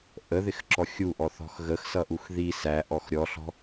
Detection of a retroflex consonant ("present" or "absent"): absent